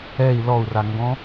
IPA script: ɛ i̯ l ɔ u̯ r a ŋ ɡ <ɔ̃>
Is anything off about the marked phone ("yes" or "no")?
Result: no